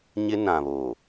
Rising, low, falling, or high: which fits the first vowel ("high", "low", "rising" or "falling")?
high